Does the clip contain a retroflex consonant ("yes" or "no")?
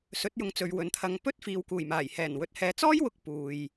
no